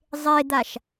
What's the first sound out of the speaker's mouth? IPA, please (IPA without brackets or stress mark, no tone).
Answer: zˤ